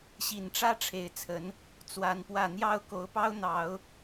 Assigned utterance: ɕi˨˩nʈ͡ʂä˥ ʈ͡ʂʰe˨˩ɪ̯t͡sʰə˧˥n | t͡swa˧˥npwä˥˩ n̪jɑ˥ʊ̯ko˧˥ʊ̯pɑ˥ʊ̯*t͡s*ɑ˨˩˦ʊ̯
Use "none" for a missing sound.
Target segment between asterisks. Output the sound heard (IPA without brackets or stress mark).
n̪